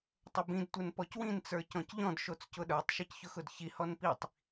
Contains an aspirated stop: no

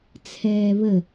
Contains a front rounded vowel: no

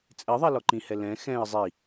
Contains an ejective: yes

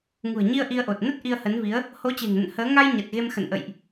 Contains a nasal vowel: no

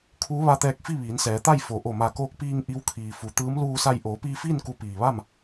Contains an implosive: no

